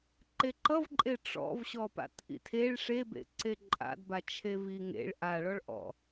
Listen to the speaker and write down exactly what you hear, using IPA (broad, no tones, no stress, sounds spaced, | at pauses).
ǃ e ǃ ʌ v ǃʼ e ʈ͡ʂ ɔ̰ v ɕ ɔ p a̰ t ʔ ḭ tʰ e ɭ ʂ e b ḛ ǀ e ǃʼ a̰ d b a t͡ʃʰ e v i ŋ ḛ ɭ ʔ a ɭ ɔ ɭ ʔ ɔ̰